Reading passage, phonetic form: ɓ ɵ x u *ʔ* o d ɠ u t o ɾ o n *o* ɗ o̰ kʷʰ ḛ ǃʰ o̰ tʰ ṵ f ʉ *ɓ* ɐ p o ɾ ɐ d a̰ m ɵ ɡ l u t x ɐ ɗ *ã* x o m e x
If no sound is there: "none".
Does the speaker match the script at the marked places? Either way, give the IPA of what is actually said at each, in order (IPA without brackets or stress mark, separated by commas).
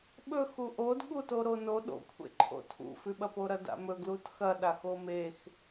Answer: ʔ, o, ɓ, a